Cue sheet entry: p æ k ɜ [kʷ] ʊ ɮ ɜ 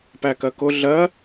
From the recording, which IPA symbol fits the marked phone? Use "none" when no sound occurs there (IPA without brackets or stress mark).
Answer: k